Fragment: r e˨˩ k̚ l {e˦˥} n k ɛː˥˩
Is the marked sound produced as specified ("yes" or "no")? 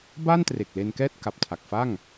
no